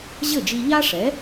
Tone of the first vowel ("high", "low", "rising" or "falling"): falling